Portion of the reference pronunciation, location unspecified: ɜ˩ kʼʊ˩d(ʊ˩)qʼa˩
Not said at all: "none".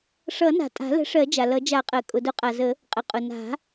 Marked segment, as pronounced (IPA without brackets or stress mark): ʊ˨˩˦